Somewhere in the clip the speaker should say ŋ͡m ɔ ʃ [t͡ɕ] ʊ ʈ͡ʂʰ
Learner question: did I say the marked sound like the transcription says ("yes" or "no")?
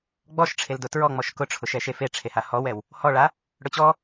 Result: no